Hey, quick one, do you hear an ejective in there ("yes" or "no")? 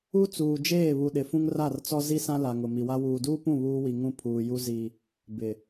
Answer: no